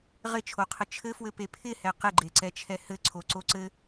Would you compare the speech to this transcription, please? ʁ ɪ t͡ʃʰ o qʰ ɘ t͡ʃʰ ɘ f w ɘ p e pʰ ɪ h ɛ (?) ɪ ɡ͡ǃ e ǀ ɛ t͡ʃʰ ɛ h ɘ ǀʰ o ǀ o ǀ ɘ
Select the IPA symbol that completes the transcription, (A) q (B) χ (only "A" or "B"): A